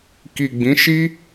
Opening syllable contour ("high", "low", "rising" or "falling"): low